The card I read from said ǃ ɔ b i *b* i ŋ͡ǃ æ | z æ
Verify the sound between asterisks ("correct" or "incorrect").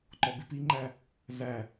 incorrect